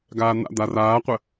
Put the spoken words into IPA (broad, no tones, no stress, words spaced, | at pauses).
ɡaːn̪a̰ d̪araːqʷə